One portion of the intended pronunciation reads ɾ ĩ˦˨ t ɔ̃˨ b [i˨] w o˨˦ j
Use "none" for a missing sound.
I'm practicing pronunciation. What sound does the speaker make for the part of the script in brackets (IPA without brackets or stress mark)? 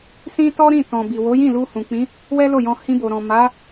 i˨